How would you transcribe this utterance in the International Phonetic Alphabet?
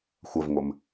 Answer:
xʷɐvŋʷɘm

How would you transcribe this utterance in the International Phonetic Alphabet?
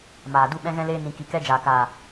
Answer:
maː˨ du˦ ɓɛ̃˦ɣɛ̃˦leː˦ nĩ˧ ki˨kɛ˦d͡ʒaː˨kaː˨

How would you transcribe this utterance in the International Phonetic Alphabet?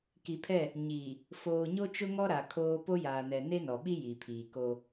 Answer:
ki˨pʰɛ˦˨ | ɲiː˨ | foː˨ɲo˦t͡ʃʊ˦ŋɔ˦ ɾa˨kʰoː˦ po˦jaː˨nɛ˨ ne˦nɔ˨ɓi˦ ji˨pʰiː˨ko˦

